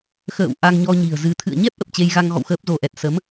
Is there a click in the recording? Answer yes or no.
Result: no